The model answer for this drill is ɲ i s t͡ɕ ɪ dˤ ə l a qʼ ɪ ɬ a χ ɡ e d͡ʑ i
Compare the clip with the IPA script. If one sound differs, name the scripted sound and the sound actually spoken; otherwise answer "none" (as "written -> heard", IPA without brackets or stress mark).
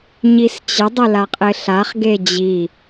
ə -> ʊ